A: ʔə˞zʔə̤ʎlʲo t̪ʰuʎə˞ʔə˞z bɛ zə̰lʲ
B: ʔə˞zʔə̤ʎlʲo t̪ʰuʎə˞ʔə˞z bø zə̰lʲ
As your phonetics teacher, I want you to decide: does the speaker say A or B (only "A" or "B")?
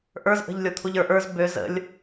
B